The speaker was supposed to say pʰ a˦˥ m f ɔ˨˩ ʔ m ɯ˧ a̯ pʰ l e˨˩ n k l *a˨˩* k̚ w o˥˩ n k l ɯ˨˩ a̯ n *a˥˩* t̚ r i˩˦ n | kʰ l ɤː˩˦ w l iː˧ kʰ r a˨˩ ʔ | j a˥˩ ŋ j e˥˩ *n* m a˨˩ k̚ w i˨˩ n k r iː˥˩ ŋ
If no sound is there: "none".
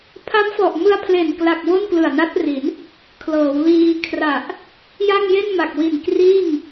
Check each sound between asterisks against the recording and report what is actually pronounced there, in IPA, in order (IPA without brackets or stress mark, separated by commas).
a˨˩, a˦˥, n